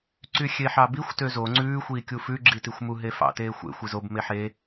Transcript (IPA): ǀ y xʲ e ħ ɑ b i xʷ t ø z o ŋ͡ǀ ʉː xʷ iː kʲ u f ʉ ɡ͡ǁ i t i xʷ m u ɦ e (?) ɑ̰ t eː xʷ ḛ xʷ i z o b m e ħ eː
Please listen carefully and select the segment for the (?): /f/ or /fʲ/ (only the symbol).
f